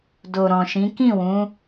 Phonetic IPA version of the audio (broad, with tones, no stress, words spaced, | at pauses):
do˨ɾɔ̃˨ʃĩ˨˦ kĩ˦˨wũ˨˦